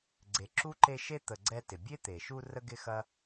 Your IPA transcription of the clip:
ɡ͡ǀ e˨ ǁ u˥ ǃ e˦ ʃ e˥ t̪ ə˨ ɡ͡ǀ ɛ˦ t ɪ˩ bʲ e˥ t̪ e˩ ʃ u˦ r ə˥ ɡ ɪ˥ x ɐ˥

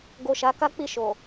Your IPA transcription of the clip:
ɡ o˨ ʃ a˨˦ k a˦ k͡p i˦˨ ʃ o˨

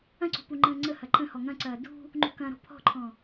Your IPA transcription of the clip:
ɐ̃ ǀ ṳ p u ŋ͡ǃ ə̃ː ŋ͡ǀ ə h ɐ ǃ ə̃ h ɔ ŋ ɐ̃ ǀ ɐː d ṳ | ŋ͡ǃ ṳ k ɐ̃ ɾ ɔ̤ pʰ ɔ̤ ǃʰ ɔ̃

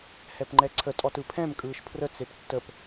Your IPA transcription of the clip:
h ɛ p ŋ͡ǃ ɛ ǀʰ ə tʼ ɔ t ɯ pʰ ɛ̃ m kʼ ɯː ʃ pʰ r ə t͡s e p tː ə p

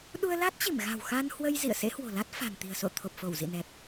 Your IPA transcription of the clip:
ɗ u˧ ə̯ l a˦˥ t̚ t͡ɕ i˧˩ m ɣ a̤˨˩ w x a˧ n h w ə˧ j z ḭ˧˨ ə̯ s ḛ˧˥ h w o̤˨˩ l a˦˥ t̚ f a̤˨˩ n t̪ i̤˨˩ ə̯ s o̰˧˨ t̪ʰ o˨˩ p̚ f o˧˩ w z ḭ˧˨ n ɛ˨˩ p̚

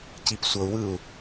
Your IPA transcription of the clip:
c i p sʷ ɤ u̯ w ɯ u̯

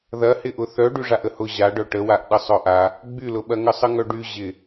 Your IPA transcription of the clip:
ð ɐ h ɪ ʔ ʊ θ œ ɖ y ʐ a ʔ ə h ʊ ʑ a ɖ œ ʈ ə w a ʔ ɗ ə sˤ œ ʔ a | ɡ͡b y l ʊ ɓ ɐ ŋ ə sˤ ə ŋ œ ɖ y ʑ ɪ

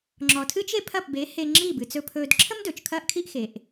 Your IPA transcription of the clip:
ŋ͡ǁ ɔ˩ tʰ ɨː˥ t͡ʃ e˥ pʰ ɐ˥˩ p b e˩˥ h e˧ ŋ͡ǁ i˥˩ b ɨ˩ t͡s ɵ˧ pʰ ɵː˧ d ǁʰ ə˥ m d ɵː˩ t͡ʃ kʰ ɐː˥ ʔ kʰ i˥ ʔ x e˩ ʔ

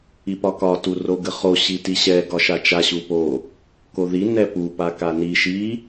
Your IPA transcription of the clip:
i p ɒ k ɒ t u r o ɡ ə χ o ɕ i t i ɕ ɛ ɡ ɒ ʃ a t͡ʃ a ɕ u p o | k o ð i n ɛ p u p a k a n i ʃ i

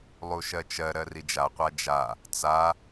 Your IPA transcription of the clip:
lˠ u ʃ ɜ t͡ʃ ɜ ɾ ɜ r i d͡ʒ a qʷ a d͡ʒ a | t͡s a

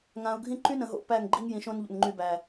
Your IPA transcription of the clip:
ŋ ã˨ ʊ̯ ɡʱ ĩ˦ ǃ y˦ n ə̃˨ ɦ o̰˨ p æ˦˨ ŋ ɡ͡ǃ i˦ ŋ j ĩ˨ ʃ õ˦ n ʎ o̰˨ n ŋ͡ǃ y˨ b æ˨

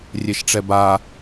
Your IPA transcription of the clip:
rʲ e ʃ ʈ͡ʂ ɛ b a

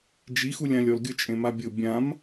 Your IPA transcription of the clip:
d͡ʒ i x u lʲ ã lʲ ɔ l ɡʲ ʊ t͡ʃʼ ẽ m a bʲ ʊ bʲ ã m

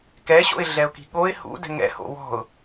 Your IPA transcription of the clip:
k ɛ ɕ o̰ ɪ̯ ɮ ɛ ʊ̯ k i̤ ɠ o ɪ̯ h ṵ d ɛ̤ ŋ ɛ̰ h o̰ w ɔ̤ ʊ̯

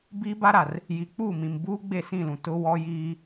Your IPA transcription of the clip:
b iː˦ b a˦ ɾ a˨ r | j i˨ k͡p u˦˨ m ĩ˨ m b uː˦ ɡ͡b e˦˨ s ĩ˦˨ l ũ˨ t ʊ˦ w ɔ˦ j iː˦

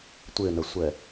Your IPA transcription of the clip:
tʷ ɪ n ə sʷ ɛ

